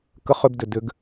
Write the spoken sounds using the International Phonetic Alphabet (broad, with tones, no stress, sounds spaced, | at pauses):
k ə˧˥ χ ʏ˧ b d ʏ˩ d ʏ˩˧ ɡ